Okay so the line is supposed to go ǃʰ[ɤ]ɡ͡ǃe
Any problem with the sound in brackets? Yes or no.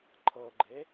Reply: no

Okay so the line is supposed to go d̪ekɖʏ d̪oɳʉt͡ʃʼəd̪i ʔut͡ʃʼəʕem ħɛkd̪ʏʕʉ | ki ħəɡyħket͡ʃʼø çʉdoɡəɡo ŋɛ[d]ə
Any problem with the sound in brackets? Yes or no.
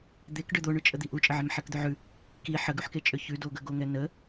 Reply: yes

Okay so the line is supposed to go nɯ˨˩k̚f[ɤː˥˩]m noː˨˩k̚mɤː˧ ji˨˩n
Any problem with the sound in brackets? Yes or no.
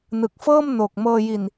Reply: no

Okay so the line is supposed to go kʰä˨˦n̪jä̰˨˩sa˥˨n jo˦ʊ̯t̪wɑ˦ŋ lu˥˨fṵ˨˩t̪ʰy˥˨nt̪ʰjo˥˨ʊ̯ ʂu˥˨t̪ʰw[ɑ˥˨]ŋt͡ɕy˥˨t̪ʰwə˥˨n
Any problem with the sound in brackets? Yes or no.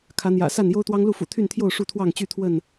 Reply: no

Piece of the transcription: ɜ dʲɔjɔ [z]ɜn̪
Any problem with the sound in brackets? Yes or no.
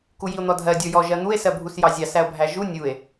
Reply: yes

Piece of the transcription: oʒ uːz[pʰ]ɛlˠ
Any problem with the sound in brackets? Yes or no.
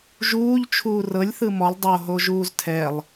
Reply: yes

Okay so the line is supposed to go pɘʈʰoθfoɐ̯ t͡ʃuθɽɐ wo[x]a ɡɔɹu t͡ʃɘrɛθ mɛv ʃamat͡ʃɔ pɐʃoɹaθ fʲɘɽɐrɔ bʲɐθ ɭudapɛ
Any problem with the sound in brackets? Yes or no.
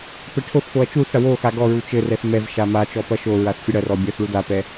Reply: no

